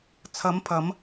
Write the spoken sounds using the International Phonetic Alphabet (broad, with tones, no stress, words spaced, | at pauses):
t͡sʰɐ˨˧mpʰɐ˨˧m